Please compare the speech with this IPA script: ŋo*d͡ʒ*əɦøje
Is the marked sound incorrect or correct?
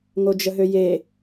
correct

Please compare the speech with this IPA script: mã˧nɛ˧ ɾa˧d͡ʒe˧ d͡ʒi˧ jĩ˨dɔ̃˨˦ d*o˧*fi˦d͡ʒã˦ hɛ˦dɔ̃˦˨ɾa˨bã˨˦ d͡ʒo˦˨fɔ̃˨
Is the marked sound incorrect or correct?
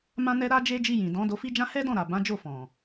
correct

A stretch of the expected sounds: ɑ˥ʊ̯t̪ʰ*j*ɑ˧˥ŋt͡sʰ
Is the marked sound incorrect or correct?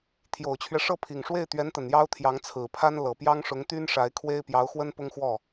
correct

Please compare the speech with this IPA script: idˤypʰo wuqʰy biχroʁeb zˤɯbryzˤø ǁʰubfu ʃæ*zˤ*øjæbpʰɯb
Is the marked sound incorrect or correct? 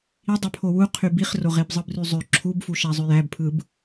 correct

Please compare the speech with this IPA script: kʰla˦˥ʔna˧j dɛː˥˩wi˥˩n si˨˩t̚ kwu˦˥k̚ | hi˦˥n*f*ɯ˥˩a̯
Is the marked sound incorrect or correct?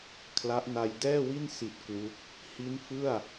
correct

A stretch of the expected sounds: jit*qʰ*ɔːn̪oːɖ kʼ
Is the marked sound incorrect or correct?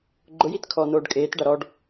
incorrect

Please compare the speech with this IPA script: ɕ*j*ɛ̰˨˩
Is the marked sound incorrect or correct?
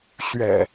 incorrect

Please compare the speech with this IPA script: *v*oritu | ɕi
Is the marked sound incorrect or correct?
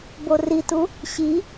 incorrect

